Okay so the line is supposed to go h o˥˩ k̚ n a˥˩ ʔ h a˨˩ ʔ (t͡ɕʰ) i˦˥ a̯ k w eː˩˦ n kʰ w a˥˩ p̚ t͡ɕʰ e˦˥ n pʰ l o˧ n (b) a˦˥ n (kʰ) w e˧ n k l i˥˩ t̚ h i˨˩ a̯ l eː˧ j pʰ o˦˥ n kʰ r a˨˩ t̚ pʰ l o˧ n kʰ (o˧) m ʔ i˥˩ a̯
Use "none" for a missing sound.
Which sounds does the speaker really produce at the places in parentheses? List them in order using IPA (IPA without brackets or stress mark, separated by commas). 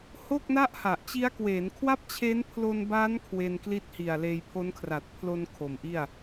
t͡ɕ, b, kʰ, o˩˦